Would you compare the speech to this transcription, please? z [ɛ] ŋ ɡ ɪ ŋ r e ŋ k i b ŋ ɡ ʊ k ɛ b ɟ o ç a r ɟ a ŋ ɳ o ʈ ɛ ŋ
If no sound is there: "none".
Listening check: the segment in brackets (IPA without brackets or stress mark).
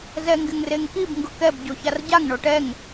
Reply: ɛ